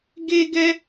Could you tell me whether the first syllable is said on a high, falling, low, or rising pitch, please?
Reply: high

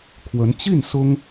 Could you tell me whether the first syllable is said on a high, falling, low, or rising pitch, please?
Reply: rising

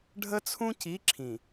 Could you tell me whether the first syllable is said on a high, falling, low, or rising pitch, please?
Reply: high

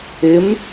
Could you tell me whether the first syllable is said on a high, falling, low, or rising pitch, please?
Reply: rising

